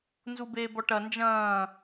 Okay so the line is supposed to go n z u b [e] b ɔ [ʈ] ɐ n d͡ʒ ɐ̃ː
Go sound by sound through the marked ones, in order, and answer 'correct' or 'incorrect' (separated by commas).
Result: incorrect, correct